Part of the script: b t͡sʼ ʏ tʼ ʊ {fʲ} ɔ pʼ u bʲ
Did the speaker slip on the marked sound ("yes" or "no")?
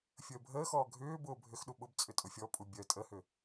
no